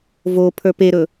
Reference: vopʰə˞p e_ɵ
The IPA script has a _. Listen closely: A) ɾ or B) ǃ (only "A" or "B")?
A